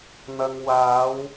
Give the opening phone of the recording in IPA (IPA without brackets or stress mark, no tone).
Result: n̪